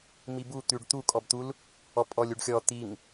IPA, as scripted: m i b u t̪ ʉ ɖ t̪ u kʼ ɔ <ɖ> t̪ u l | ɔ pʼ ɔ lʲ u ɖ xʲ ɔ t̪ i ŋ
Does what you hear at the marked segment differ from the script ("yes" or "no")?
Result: yes